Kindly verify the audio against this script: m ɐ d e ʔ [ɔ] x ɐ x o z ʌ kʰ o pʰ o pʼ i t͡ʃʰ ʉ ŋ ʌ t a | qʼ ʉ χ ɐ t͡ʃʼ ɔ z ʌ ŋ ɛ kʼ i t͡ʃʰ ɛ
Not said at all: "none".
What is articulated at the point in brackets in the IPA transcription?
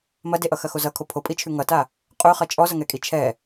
ʌ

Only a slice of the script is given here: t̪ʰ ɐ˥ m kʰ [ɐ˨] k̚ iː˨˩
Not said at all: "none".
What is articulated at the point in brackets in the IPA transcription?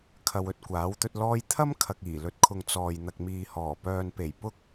ɐ˨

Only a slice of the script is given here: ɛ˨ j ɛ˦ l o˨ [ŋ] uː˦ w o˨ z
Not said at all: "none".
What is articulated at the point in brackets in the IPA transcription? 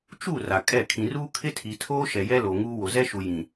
ŋ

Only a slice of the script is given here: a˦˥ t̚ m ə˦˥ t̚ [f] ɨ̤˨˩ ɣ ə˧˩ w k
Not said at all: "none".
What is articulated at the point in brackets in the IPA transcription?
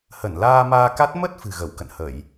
f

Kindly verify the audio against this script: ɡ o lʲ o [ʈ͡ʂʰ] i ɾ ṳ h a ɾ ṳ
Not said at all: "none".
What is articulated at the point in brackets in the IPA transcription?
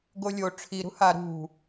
ʈ͡ʂʰ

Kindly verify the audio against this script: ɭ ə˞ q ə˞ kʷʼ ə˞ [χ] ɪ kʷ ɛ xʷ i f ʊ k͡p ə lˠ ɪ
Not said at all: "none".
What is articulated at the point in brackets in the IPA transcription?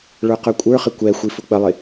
χ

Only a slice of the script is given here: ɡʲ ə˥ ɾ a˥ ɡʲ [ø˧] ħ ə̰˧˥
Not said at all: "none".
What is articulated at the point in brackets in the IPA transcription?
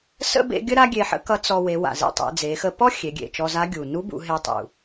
e˧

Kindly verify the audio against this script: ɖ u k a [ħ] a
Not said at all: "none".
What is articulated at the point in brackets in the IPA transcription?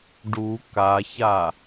ç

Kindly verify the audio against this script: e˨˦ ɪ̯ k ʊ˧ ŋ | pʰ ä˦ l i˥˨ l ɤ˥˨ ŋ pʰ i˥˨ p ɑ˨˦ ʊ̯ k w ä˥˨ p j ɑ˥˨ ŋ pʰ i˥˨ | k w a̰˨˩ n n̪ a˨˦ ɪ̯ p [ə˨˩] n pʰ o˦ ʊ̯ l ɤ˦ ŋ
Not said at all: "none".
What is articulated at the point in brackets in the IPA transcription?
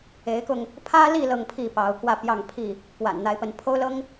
ə˨˦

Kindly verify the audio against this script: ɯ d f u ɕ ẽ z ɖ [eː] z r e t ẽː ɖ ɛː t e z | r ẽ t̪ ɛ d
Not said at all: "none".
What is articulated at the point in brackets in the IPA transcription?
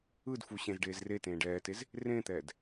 eː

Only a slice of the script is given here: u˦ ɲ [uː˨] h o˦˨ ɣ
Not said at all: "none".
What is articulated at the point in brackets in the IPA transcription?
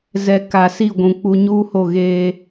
uː˦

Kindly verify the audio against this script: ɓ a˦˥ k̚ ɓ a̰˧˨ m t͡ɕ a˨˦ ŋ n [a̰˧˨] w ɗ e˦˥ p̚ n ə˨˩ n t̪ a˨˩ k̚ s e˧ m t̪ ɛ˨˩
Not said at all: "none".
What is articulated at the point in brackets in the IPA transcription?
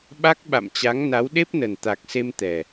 a˨˦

